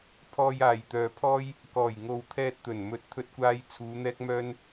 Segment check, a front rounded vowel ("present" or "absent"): present